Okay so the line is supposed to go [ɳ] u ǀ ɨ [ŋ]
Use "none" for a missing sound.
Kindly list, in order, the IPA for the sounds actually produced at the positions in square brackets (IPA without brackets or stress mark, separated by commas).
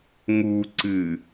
ŋ, none